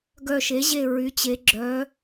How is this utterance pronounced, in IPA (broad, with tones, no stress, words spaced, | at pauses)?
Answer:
ɡœ˧˩ʃe˩˥ʑe˧˩ ɹy˩˧t͡ɕe˩˧ɡ͡ǁœ˩˧